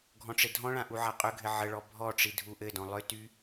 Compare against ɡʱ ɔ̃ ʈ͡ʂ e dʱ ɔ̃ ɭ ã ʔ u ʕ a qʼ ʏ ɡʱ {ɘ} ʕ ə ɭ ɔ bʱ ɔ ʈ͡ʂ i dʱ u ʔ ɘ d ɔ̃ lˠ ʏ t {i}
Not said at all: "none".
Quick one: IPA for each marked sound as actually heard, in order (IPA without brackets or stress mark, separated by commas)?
ɘ, y